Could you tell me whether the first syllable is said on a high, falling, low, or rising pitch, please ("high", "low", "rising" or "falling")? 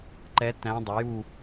rising